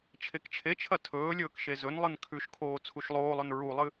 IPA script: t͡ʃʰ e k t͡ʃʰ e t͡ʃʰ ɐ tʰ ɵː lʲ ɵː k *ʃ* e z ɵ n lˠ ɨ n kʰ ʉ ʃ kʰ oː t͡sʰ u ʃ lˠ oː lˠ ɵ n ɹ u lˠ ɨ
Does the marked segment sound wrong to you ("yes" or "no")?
no